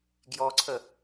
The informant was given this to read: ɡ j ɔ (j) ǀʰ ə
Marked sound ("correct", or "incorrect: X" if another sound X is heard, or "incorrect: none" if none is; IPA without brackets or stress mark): incorrect: none